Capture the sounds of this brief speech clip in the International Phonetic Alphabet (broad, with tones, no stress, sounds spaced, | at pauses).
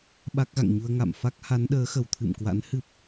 ɓ a˦˥ k̚ ɣ a̰˧˨ ŋ ɲ u˧ ə̯ ŋ a̰˧˨ m f a˦˥ k̚ h a˨˦ n ɗ əː˨˦ x ə˧˩ w t̪ʰ ɨ̰˧˨ m k w a̰˧˥ n h ɨ˦˥ p̚